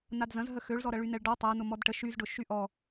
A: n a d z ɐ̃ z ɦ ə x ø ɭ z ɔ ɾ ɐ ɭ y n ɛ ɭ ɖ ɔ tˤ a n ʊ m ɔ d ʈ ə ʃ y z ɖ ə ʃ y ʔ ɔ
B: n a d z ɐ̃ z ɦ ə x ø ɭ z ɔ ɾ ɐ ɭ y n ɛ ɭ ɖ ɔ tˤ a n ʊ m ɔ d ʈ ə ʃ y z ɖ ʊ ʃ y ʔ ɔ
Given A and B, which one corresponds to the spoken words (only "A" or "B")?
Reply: B